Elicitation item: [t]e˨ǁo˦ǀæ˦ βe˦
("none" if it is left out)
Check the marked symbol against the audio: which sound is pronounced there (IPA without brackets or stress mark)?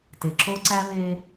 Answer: t